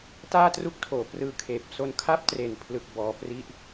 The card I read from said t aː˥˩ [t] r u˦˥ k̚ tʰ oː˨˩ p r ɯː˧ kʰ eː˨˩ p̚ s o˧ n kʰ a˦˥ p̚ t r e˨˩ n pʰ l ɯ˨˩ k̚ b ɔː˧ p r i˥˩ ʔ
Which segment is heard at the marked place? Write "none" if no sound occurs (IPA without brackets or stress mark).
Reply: t